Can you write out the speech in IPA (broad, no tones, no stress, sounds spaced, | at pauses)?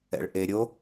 ɛ̰ ɭ ʔ e ɾʲ o